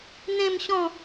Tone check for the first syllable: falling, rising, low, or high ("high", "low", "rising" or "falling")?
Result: falling